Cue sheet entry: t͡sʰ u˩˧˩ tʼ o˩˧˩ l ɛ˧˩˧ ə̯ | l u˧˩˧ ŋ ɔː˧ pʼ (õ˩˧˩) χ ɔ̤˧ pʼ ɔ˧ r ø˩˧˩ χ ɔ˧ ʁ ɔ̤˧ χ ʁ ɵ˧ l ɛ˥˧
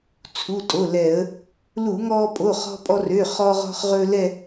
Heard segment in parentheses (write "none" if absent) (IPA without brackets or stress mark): o˩˧˩